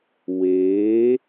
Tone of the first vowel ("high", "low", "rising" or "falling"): rising